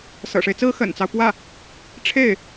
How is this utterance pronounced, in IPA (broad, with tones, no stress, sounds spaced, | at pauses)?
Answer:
s ɤ̰˨˩ ʂ e˦ ɪ̯ t͡s ɹ̩˥ x ə̰˨˩ n t͡s ɑ˦ ʊ̯ p w ä˥˩ | ʈ͡ʂʰ e˥˩ ɪ̯